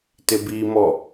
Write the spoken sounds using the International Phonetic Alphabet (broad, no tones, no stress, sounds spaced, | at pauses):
t ɪ b i m ɔ